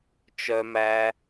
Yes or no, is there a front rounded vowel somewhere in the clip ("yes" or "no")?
yes